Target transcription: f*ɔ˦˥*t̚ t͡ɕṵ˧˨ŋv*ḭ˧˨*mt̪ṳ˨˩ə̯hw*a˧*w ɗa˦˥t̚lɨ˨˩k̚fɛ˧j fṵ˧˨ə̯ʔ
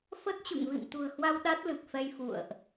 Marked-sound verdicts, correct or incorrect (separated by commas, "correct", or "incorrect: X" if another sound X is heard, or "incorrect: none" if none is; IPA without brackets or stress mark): incorrect: ə˦˥, correct, correct